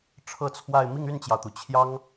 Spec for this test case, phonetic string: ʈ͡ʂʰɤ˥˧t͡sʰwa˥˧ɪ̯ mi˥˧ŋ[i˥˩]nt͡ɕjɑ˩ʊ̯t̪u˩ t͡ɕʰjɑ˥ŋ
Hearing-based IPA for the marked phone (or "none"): y˥˩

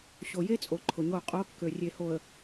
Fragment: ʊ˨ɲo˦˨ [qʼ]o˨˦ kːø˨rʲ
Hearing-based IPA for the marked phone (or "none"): qʼ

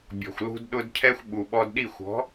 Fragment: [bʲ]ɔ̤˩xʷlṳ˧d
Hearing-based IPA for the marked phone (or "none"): bʲ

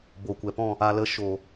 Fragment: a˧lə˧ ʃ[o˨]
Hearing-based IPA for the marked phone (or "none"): o˨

